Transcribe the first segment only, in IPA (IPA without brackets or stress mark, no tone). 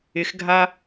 ɪ